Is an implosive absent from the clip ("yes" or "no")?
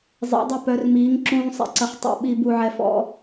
no